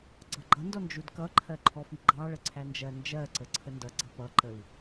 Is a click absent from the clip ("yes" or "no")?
no